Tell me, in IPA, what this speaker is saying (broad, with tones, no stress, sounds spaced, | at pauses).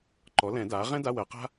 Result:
ǃ ɔ˩˥ l ɛ̃˨˩˦ d aː˩˥ ʁ ɛ̃˥ d a˧˥˧ w ɜ˨˩˦ q a̤˥